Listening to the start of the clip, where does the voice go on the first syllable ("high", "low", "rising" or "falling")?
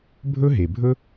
high